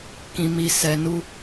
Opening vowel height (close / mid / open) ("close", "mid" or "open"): close